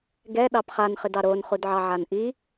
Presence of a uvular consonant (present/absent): present